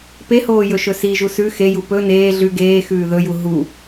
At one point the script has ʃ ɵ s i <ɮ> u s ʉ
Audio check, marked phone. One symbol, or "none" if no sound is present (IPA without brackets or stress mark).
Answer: ʒ